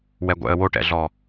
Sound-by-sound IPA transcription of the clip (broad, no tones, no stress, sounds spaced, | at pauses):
w ɛ ɡʷ ɛ̰ ə̯ w o ʈ ɛ̰ ɮ ɔ